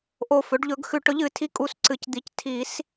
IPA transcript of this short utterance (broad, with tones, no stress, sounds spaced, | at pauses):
ʔ o˧˩ f ɵ˩˥ ɖ ʎ ɵ˩˥ ɡ x ʉ˨˩˦ ʈ ɵ˩˥ ʎ ɨ˨˩˦ tʰ i˧˩ kʼ u˨˩˦ s ǀ ɨ˩˥ c d̪ i˩˥ c tʰ i˨˩˦ s